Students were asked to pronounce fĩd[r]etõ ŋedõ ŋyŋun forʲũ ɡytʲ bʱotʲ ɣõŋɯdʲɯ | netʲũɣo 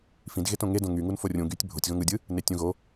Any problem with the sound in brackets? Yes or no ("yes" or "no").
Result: yes